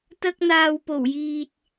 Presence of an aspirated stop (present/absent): absent